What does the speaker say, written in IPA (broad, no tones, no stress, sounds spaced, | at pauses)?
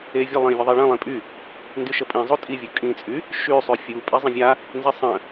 e vʲ ə lˠ ĩ vʲ ə ðˤ i ɭ ə̃ lˠ ĩ pʼ y | n d y ʃ ə pʼ ĩ zˤ u tʼ i vʲ u kʼ ĩ t͡sʼ y | ʃ y sˤ y fʲ u pʼ i zˤ ə̃ vʲ a | n z i sˤ ə̃